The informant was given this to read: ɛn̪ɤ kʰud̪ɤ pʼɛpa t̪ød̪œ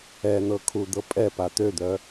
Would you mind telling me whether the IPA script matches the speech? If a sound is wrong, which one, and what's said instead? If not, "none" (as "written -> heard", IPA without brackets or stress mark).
none